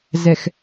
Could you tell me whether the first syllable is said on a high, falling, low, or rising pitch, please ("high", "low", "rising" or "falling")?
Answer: low